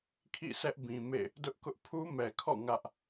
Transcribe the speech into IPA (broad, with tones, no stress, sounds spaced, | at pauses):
kʰ ḭ˦˨ sʰ ɛ˦ ʔ b ĩ˨ m ḛ˦˨ | d ʊ˦ ʔ k ʊ˦ ʔ pʰ u˦ m ɛ˨ kʰ ɔ̰˦˨ ŋ ä˦ ʔ